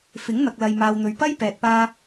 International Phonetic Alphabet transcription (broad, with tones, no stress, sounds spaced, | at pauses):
f ɪ˨˥ ŋ n̪ ɐ˨ k̚ l ɐ˨ j m aː˨ w n̪ ɵ˨ ɥ p ɐ˥ j p ɛː˨ t̚ p aː˧